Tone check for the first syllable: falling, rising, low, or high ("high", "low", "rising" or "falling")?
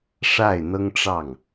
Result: falling